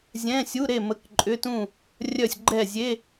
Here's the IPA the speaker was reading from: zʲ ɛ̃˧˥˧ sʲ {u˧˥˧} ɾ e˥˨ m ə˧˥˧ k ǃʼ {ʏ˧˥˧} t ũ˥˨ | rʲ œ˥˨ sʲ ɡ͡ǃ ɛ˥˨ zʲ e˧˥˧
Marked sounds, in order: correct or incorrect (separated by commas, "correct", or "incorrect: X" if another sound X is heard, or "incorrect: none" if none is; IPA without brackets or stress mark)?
correct, correct